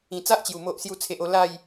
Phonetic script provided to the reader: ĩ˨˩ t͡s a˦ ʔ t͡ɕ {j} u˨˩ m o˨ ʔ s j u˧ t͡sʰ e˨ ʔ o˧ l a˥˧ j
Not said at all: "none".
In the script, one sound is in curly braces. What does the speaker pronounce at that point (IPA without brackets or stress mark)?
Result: j